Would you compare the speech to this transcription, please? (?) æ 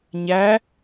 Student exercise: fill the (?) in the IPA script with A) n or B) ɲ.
B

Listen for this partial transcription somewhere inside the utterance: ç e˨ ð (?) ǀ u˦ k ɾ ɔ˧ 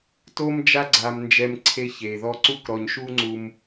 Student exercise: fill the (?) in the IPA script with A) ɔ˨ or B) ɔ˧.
B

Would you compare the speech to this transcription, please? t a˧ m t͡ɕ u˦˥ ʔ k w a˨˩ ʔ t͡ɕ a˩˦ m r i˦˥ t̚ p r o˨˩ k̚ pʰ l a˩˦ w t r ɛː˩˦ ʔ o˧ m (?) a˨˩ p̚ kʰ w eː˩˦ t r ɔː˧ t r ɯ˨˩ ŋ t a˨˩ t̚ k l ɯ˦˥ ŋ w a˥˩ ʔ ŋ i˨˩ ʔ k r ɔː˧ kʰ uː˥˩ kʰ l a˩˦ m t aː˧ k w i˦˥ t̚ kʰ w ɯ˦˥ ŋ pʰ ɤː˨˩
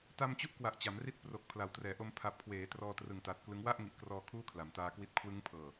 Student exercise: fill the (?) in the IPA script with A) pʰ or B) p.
A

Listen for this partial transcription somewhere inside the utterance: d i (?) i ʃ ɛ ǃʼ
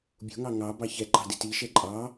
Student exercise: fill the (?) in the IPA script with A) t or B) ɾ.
A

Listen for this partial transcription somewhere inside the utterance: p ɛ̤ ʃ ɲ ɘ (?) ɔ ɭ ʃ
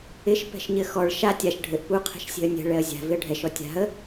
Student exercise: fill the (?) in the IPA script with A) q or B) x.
B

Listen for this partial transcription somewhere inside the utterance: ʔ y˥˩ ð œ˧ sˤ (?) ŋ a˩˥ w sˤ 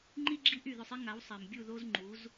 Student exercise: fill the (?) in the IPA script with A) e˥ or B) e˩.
A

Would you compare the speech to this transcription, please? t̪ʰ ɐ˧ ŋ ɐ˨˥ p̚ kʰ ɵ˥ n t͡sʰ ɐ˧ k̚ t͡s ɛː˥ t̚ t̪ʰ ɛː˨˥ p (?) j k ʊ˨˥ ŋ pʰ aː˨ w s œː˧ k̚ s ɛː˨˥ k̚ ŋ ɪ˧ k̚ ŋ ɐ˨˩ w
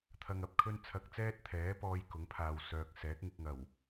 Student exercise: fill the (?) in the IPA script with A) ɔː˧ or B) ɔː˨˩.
A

